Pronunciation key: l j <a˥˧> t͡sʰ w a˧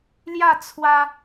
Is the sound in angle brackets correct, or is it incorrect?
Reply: correct